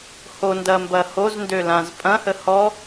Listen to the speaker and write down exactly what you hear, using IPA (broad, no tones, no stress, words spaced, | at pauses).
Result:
hondɐmbɐ hozndølãz pʼɐ̃hə hɔ